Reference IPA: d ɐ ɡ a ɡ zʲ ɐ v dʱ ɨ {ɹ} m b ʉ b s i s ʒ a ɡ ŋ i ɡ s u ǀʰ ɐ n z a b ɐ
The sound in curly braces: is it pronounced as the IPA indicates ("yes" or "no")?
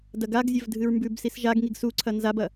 yes